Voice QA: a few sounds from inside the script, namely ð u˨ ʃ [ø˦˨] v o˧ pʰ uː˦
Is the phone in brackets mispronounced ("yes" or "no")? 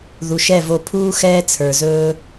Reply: yes